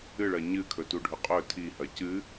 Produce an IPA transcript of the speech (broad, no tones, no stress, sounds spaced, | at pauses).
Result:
ɨ ɭ ɐ ɲ ɨ kʰ ɵ t u ɖʱ ɵ qʼ ɵ tʰ i h ɐ c ɨ